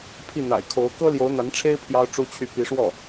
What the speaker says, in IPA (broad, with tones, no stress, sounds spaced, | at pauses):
pʰ i˥˩ n̪ a̰˨˩ ɪ̯ kʰ o˧˥ ʊ̯ k ɤ˥ l j o˧˥ ʊ̯ n̪ a˧˥ n ʈ͡ʂʰ e˥ ɪ̯ pʰ j ɑ˥ ʊ̯ ʈ͡ʂ u˥ t͡ɕʰ y˥˩ p i˧˥ ʂ w ɔ˥˩